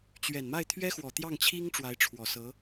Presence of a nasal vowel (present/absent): absent